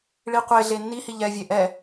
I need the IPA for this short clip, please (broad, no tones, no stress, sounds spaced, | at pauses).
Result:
ɭ i qʷ e ɮ e nː i h i ʎ ɛ vʲ e ʔ ɛ